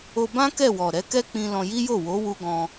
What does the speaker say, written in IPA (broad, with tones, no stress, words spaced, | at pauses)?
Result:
o˧ bã˦ kɛ˦˨wɔ˨ ɾɛ˨˦kɛ˦k͡pĩ˧ lɔ̃˧ji˦jo˦˨ wo˨˦ wu˧ɡɔ̃˧